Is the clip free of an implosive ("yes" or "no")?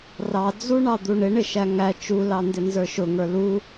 yes